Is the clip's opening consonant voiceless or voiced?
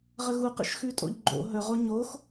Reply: voiced